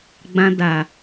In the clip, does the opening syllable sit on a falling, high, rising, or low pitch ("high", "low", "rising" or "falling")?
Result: high